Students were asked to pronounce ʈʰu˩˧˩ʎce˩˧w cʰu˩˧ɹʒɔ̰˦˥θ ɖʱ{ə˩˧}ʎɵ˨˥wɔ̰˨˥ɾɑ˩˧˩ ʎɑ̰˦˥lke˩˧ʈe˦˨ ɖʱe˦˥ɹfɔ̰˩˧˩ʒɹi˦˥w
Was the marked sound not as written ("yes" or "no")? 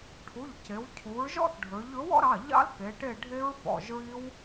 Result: yes